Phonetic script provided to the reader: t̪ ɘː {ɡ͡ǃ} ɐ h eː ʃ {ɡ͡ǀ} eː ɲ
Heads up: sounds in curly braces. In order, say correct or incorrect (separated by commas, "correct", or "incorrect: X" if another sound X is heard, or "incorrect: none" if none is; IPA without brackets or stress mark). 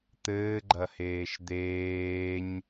correct, incorrect: d̪